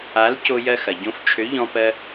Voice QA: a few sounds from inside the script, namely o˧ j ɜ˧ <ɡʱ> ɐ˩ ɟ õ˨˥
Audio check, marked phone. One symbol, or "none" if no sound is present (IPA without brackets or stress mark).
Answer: x